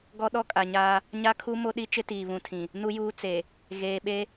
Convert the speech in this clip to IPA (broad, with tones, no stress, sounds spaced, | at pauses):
ɡ ɔ˦ ɗ ɔ˦ kʼ a˨ ɲ aː˦ | ɲ a˦ kʰ u˦ m o˦ ɗ i˦ t͡ʃ ɪ˦ t iː˨ β ũ˨ tʰ ĩ˨ | n u˨ j uː˨ t͡s e˨ | ɣ eː˨ ɓ e˦